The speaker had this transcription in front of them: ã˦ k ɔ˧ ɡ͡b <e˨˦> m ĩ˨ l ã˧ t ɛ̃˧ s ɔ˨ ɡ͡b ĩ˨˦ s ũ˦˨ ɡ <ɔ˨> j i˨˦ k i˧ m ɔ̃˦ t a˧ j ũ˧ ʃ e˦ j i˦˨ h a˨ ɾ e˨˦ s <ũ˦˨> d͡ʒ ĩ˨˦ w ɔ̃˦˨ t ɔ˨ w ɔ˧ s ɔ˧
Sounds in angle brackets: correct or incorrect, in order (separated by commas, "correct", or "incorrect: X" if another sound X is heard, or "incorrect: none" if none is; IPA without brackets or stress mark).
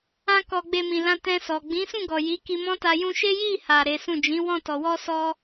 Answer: incorrect: e˧, correct, correct